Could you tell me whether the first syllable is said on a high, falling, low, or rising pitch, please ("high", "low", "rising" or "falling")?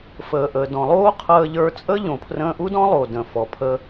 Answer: low